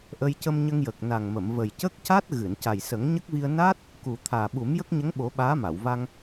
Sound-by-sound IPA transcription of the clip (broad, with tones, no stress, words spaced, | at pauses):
ʔə˧jcə˧mɲə˧ŋjə˨˩k̚ na˨˩ŋmə˨˩˨m və˨˩jcə˦˥k̚ca˦˥t̚ ɣɨ˨˩˨n ca˨˩jsə˨˩˦ŋɲə˦˥k̚vi˧ə̯ na˦˥t̚ | ku˨˩ t̪ʰaː˨˩ɓu˨˩˦m jə˦˥k̚ɲə˧˥ŋɓo˨˩˦ ɓaː˧˥ma˨˩˨w va˧ŋ